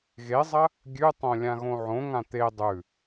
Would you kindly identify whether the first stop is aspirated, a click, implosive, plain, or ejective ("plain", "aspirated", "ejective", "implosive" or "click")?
plain